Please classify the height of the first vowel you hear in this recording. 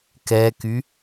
mid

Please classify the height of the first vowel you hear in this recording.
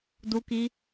high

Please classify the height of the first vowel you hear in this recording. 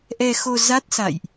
mid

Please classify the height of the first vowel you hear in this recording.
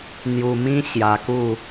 high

